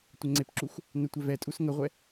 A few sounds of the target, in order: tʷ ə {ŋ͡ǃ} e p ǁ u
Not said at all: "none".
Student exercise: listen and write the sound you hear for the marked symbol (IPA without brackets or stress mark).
ŋ͡ǀ